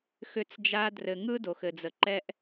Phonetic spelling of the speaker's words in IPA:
x ʏ˦ t͡s d͡ʒ a˦ d r ɘ˨ ŋ ɯ˦ d o˨ x ɘ˨ d͡z ə˨ ǃ ɛ˦ ʔ

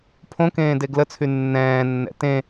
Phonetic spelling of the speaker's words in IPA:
pʰ õ k ẽː d e ɡ l ə t͡sʰ y nː ɛ̃ː nː ɛ̰ t ẽ

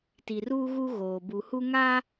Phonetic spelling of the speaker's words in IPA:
t i˨ r uː˦ ɣ u˦ ɣ oː˨ b u˨ h u˦ ŋ a˦

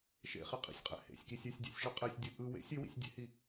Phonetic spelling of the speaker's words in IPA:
ʃ ḛ χ e qʼ ḭ sʲ qʼ ɛ̰ h ḛ sʲ k i sʲ ʏ sʲ dʲ ḛ sʲ ʃ ʏ qʼ ɛ sʲ dʲ ɯ ʔ ɯ w ḛ sʲ ʏ w ḭ sʲ dʲ ḛ h i

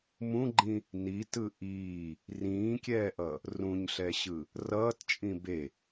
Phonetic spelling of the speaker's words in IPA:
m ũ ɡ͡ǃ ĩ | n i t ɯ ʔ iː | r ĩː kʲ ɛː ʔ ʌ | r ũ ɲ ɬ ɛ ɕ ɯ | r ʌː t t͡ʃʼ ĩ b e

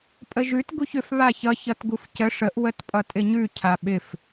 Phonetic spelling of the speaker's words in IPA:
pʼ ə ʒ ʉ t ɡ u ç ʏ f β a ç ʌ ç ʌ t ɡ u f c ə ʂ ə ʔ w ə t pʼ ʌ tʼ ɪ ɲ ʉ cʰ a ɓ ɪ f

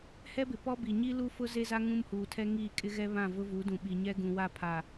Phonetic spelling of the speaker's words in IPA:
h ɛ˦ b ɪ˨ p ɔ˦ b i˨ ɲ i˦ l u˦ f ʊ˦ z e˦ z a˦ ŋ ũ˦ m h uː˨ tʰ ɛ˦ ŋ iː˦˨ kʼ ɪ˦ ɣ ɛ˦ β ã˦˨ v ʊ˦ v u˨˦ d ũ˨ ɓ i˨ ɲ ɛ˦ ɡ ũ˨ w a˦˨ pʰ a˨

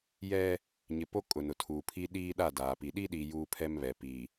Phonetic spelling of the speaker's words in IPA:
j ɛ˦ | ɲ ɪ˨ p o˦ kʼ ʊ˨ n ʊ˨ tʰ uː˨ pʰ i˦ ɗ iː˦ ɗ a˦˨ d aː˨ p i˨ ɗ i˦ ɗ iː˨ j uː˦ pʰ ɛ˦ m β ɛ˨ p i˨

